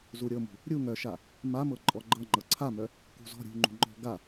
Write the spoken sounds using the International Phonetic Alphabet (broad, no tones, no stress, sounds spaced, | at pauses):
z u ɾʲ ɤ m ṳ | ɾʲ u ŋ œ ʃ a | m a m ɤ ǃʼ ɔ ɡ͡ǃ ɤ ŋ͡ǃ ɤ ǀʰ a m œ | k ṳ z ɔ̤ ɾʲ ṳ ŋ͡ǃ ṳ ŋ͡ǃ ɔ̤ ɡ a